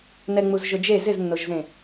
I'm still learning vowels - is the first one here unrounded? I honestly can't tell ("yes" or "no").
yes